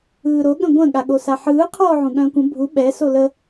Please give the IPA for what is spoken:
ɯːɾo ɠə̃ɡʷə̃ ɠaɠosaħɯː qʰɔːʕũɠœ̃ːkʷə̃ bʱu ɓɛ solə

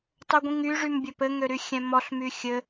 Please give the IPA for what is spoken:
tˤoɡʷĩŋy ʐymbʲɵpɘ ŋøɾyxʲɛ̃mɔɬ myxʲɘ

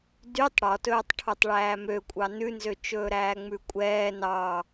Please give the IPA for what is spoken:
dytˤ ɽɔtɵːtˤʈʰotˤ ɭæːmøkʷʼɑ nʉnzøt͡ʃɵːɾæː ŋ͡mʉkʷʼɛː nɑ

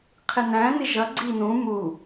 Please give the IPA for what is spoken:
qʰɪnæ̃nɪ ʒʌɡ͡ǀi nũ mu

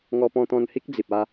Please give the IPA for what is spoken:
ŋɔ˧pɔ̃˧t̪ɔ̃˧nhi˦k̚ d͡zi˨p̚a˧

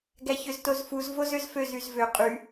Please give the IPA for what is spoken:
ɡæçøztozfuz vozøzføz yzvø qʼy

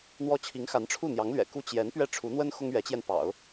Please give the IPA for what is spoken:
n̪wɔ˥ t͡ɕʰi˧˥ŋxa˧˥nʈ͡ʂʰu˥˩n̪jɑ˧˥ŋ lɥɛ̰˨˩ku˥ t͡ɕjɛ˧˥n pɥɛ˥˩ʈ͡ʂʰu˧˥n̪wə˥n xʊ˥ŋɥɛ˧˥t͡ɕjɛ˧n pɑ̰˨˩˦ʊ̯

